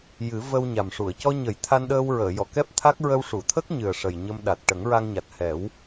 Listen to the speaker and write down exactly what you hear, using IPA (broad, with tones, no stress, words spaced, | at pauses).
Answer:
jɨ˨˩˦ və˧w ɲa˨˩mʂu˨˩˨ə̯ cɔ˧ɲə˨˩˦j t̪ʰa˧nɗəː˧w ɹəː˨˩˨jɔ˨˩˨ kɛ˦˥p̚t̪ʰa˦˥k̚ ɹə˧wʂu˨˩˨t̪ʰə˦˥k̚ɲɨ˨˩ə̯ ʂə˨˩j ɲə˧mɗa˨˩t̚ ʈə˨˩˦ŋɹa˧ŋɲa˨˩t̚ hɛ˨˩˦w